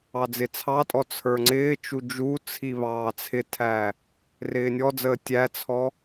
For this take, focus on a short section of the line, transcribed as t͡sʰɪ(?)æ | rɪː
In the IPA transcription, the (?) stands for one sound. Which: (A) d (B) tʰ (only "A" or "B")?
B